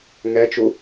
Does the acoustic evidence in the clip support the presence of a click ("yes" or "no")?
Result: no